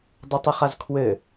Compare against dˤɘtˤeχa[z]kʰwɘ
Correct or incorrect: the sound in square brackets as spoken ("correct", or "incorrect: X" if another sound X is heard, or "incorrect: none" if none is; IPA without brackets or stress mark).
correct